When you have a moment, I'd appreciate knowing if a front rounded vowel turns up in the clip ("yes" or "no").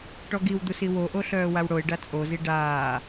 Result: yes